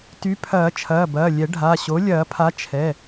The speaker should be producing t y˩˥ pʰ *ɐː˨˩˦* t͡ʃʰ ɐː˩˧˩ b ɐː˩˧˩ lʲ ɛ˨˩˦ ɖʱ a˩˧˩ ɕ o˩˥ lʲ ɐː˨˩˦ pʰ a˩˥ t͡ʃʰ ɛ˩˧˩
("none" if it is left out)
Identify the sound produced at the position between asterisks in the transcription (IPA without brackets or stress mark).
ɐː˨˩˦